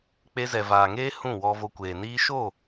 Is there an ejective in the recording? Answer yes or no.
no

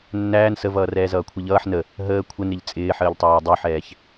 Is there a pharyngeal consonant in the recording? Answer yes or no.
yes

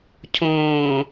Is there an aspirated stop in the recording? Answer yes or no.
yes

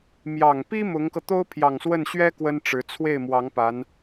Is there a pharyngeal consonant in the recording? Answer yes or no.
no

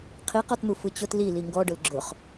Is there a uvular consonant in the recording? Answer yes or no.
yes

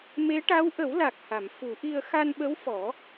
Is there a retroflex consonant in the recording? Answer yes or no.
yes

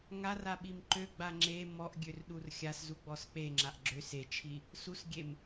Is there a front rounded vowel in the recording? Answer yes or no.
yes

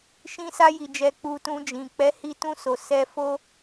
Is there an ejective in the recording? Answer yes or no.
no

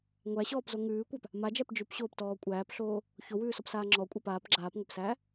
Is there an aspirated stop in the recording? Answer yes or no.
no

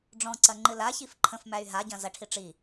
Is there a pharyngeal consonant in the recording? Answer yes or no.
no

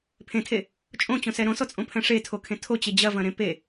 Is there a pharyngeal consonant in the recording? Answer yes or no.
no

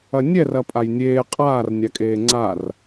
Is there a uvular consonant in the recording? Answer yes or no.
yes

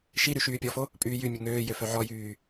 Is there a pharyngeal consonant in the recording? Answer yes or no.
yes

